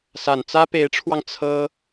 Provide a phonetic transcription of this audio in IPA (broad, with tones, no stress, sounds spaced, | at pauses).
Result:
s a˨˩ n t͡s ä˥ p e˧˥ ɪ̯ ʈ͡ʂʰ w ɑ˧ ŋ t͡sʰ ɤ˥